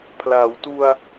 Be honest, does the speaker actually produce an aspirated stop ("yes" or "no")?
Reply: yes